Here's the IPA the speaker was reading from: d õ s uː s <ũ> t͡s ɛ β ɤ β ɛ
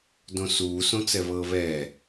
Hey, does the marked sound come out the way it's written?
no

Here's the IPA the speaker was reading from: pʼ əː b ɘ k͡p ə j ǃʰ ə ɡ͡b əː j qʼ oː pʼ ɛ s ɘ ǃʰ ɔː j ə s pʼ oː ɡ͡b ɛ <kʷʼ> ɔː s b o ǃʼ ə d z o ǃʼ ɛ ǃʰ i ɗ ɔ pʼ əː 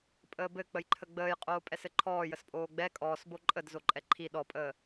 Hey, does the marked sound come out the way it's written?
no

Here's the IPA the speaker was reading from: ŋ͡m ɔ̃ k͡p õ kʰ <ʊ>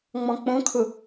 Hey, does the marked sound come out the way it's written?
yes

